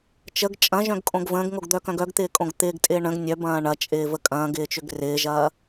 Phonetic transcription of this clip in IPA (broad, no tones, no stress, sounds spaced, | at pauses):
t͡ʃ ə ɡ t͡ʃʼ ɐ̃ ʒ œ̃ ɡ kʼ õ ɡ v ə̃ː ɡ ŋ o ɡ d̪ œ k œ̃ ɡ œ ɡ t̪ ɪː kʼ õ ɡ t̪ ɪː ɡ tʼ ɪː ɳ ə̃ ɡ nʲ œ b ɐ̃ː ɳ ɐ t͡ʃʼ ɪː v ə kʼ ɐ̃ː ɡ ɪː t͡ʃ ʏ ɡ r ɪː ʒ ɐː